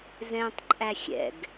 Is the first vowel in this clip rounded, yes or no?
no